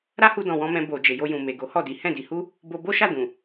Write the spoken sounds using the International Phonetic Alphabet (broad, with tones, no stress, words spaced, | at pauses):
ɾa˦hu˧dɔ̃˨ wɔ̃˧mɛ̃˧ bo˨ d͡ʒe˨jo˧jũ˨ me˨ɡo˨˦hɔ˦˨di˨˦ hɛ̃˦˨di˧ hu˦ | bo˧bo˦ʃa˦˨ dũ˨